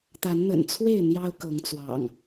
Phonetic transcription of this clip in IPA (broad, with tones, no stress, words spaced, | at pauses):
t̪a˨˦nn̪ə̰˨˩nt͡sʰwe˥˨ɪ̯ n̪jɑ˦ʊ̯kɤ˨˦ŋt͡swɑ̰˨˩ŋ